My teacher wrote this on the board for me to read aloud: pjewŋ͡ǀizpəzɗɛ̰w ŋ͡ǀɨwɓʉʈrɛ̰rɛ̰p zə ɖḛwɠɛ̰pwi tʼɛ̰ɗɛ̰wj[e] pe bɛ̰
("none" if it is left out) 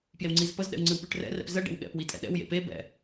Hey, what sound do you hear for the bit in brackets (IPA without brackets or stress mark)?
ḛ